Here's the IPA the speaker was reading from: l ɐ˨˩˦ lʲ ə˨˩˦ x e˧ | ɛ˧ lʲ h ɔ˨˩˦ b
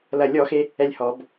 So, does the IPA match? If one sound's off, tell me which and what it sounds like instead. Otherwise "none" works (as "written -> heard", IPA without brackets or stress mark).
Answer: ə˨˩˦ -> ɔ˨˩˦